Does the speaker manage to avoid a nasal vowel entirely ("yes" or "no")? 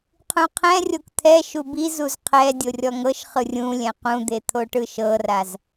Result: no